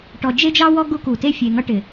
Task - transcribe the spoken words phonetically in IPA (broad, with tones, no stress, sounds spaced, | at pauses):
ʈ ɔ˨ d͡ʒ e˦ d͡ʒ ɑ˦ w ɔ˦ ɡ u˦ k u˨ t e˦ fʲ e˨ ŋ ʌ˦ ʈ ɪ˨